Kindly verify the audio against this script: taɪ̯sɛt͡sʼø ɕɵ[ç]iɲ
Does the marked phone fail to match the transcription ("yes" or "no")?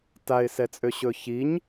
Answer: no